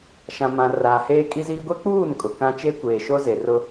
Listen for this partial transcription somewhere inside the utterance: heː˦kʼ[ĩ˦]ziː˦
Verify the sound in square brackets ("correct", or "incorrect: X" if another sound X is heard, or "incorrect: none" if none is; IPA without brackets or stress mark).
incorrect: i˦